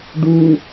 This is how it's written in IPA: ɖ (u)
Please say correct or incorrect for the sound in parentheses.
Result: correct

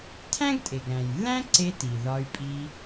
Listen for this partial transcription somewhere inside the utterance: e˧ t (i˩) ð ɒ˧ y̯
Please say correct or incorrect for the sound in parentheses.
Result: correct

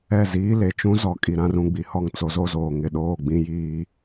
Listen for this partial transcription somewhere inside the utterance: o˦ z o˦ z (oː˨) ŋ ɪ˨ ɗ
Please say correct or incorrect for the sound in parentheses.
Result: correct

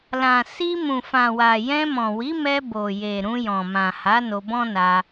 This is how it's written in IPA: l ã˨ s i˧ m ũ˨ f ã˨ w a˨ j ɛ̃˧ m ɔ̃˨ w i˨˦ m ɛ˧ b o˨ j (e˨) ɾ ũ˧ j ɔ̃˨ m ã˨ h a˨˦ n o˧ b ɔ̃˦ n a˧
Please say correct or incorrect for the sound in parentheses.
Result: correct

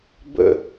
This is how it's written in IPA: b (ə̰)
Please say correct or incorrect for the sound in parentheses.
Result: correct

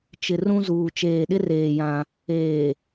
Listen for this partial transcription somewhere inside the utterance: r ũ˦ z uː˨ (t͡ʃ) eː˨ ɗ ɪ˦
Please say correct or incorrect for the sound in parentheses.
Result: correct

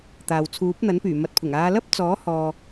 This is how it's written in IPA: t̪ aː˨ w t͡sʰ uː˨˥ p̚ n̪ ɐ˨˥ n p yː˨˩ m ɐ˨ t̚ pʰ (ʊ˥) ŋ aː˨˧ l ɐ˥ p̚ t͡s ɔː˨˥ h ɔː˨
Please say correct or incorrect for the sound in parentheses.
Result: incorrect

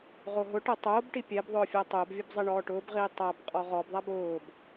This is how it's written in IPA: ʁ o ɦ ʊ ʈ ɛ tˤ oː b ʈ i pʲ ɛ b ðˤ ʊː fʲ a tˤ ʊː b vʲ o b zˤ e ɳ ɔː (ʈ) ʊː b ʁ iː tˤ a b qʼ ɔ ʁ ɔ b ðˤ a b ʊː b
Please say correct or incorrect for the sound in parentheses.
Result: correct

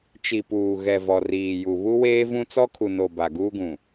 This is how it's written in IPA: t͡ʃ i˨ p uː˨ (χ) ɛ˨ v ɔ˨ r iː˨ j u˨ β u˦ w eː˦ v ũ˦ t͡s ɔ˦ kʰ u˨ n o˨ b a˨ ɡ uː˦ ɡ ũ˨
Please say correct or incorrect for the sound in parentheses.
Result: incorrect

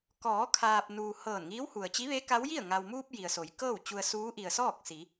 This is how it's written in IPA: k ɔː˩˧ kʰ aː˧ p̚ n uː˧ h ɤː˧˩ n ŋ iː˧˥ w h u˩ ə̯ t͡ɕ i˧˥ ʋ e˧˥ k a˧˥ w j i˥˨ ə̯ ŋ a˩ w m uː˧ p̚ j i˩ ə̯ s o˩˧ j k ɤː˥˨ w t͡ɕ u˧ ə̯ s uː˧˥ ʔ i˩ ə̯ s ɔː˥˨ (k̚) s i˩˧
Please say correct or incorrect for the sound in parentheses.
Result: correct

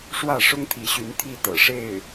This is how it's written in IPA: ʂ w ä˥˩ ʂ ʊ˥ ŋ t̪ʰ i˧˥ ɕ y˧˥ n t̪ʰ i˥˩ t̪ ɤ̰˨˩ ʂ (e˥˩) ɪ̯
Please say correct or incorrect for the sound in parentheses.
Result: correct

